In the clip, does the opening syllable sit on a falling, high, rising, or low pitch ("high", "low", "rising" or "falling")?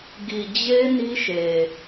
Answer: low